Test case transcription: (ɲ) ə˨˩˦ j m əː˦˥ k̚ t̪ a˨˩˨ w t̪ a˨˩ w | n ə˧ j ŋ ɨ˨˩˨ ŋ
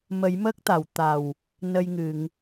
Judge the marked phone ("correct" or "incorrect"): incorrect